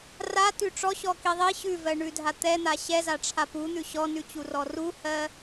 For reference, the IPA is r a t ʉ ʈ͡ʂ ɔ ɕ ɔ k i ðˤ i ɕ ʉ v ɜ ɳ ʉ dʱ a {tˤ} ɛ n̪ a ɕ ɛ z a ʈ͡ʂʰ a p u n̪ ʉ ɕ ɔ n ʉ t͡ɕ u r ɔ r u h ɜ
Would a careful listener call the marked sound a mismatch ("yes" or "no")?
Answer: yes